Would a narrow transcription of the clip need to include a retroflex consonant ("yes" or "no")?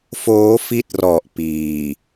no